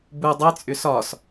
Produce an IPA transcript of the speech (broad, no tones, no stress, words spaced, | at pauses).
bu dˤəjt͡sʼʏ sɒs